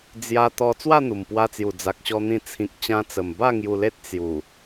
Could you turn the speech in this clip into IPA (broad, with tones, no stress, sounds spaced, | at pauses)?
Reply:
d͡z j a˧ t̪ ɔ˧ t͡s w a˥˧ n̪ u˨˩ m p w a˧ t͡s j u˨˩ d͡z a˨ k̚ ɕ ɔ˧ n̪ ĩ˧ t͡sʰ ĩ˨ k̚ t͡ɕ ã˧ t͡s ə˨˩ m b a˥˧ ŋ j u˧ l e˦ t̚ t͡s j u˨˩